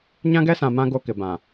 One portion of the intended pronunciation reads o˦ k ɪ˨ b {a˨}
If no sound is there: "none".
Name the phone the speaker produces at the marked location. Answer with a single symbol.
ã˨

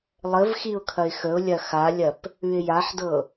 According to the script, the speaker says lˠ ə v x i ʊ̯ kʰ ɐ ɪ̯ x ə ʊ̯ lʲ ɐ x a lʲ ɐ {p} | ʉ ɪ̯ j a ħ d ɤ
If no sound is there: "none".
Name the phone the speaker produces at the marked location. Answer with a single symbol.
p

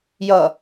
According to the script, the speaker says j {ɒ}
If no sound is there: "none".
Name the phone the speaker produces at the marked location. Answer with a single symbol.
ʌ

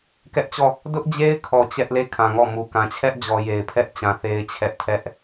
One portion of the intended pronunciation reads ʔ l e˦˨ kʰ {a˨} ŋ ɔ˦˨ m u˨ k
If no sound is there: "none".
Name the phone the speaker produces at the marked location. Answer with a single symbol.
ã˨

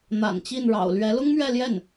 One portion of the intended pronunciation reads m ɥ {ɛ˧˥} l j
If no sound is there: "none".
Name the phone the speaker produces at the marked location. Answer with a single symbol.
ɛ˥˧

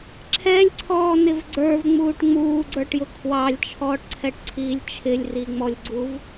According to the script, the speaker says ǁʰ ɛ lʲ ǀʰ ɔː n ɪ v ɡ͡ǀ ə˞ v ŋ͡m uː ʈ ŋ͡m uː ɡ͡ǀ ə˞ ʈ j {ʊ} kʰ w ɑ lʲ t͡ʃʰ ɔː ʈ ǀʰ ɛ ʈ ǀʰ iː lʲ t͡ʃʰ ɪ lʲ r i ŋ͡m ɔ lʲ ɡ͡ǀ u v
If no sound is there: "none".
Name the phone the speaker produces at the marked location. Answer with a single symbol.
ʊ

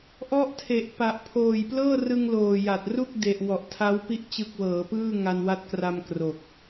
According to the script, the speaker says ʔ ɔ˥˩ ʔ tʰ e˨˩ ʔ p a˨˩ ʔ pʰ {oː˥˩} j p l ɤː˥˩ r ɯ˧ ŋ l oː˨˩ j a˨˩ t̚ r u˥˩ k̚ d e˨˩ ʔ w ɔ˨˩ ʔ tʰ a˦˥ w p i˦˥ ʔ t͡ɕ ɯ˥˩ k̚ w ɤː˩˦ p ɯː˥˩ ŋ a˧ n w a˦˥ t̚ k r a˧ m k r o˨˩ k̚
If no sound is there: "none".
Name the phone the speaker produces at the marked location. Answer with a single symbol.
oː˨˩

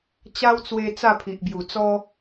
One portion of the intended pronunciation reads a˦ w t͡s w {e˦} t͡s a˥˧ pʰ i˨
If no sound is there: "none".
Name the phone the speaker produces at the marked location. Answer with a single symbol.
e˧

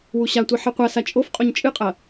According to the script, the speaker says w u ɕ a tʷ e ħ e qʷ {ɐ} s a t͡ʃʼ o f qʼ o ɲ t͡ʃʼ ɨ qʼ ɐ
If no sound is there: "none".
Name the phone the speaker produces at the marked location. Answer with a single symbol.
a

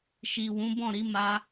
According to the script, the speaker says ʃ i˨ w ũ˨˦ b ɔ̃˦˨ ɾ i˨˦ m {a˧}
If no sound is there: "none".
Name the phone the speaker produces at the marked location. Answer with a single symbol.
a˧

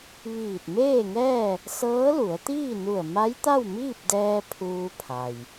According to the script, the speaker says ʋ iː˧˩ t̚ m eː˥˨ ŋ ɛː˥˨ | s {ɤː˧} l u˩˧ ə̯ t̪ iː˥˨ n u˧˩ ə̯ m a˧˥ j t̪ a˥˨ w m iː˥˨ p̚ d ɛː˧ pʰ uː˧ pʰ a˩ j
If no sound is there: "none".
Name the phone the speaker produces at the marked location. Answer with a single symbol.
ɤː˧˥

